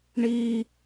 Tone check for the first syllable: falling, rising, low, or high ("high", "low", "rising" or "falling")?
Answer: high